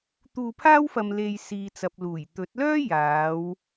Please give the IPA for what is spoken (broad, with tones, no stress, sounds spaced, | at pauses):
t̪ uː˧ pʰ aː˥ w f ɐ˧ m l e˧ j s iː˨ t͡s ɐ˨ p̚ l uː˨˩ j t̪ ɵ˨˥ t̚ l œː˥ j aː˨˧ w